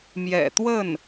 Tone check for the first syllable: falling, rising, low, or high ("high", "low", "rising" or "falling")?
low